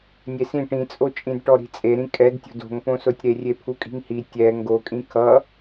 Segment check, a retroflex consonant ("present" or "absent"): present